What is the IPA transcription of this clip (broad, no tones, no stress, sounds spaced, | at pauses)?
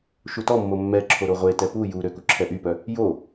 ʃ u t ɔ mː o mː ɛ ǁʰ o ɾ o ʁʷ e t ɛ p u j u ɾ ø k u ǁʰ ɛ ʔ y p œ | j o